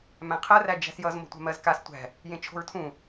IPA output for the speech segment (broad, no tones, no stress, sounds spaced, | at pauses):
m æ̃ qʰ ɜ r æ d͡ʒ æ̤ s j ʌ z m o̤ tʷ a̤ m ɜ z k a s tʷ æ̤ | j ẽ t͡ʃʰ o̤ ɹ tʰ ũ